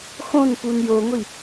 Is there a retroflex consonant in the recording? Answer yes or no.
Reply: no